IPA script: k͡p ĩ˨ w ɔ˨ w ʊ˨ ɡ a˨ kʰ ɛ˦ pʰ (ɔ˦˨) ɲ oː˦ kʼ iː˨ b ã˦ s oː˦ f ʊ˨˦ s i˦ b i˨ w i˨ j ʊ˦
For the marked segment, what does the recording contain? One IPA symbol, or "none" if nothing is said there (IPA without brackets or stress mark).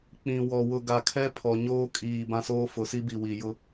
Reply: ɔ˨